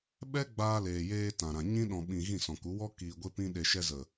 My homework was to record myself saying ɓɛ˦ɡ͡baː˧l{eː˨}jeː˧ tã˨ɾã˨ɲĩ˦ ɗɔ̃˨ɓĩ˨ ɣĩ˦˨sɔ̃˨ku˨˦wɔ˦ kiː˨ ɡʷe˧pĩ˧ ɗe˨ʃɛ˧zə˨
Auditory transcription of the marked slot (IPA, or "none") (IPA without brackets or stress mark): eː˨